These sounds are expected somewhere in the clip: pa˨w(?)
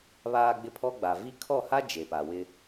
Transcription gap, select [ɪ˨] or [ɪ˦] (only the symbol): ɪ˦